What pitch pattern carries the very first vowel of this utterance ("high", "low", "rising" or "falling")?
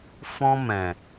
high